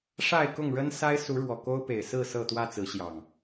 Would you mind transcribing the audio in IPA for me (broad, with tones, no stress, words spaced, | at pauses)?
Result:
ʂa˥˨ɪ̯kʊ˥˨ŋɻə˦n sa˦ɪ̯su˨˦ɻwɔ˨˩ ko˦ʊ̯pe˨˩ɪ̯ sɹ̩˥˨ sɤ˥˨t̪wä˥˨t͡sɹ̩˨˦ɕjɑ˨˩ŋ